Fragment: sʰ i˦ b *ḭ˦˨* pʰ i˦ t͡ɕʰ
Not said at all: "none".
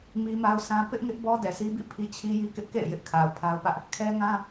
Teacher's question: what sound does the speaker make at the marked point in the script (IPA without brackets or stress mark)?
ḭ˦˨